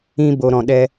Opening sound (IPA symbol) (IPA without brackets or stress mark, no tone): ĩ